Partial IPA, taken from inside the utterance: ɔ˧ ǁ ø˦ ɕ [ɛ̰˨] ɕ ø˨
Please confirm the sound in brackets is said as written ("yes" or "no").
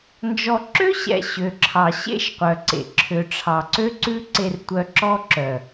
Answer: yes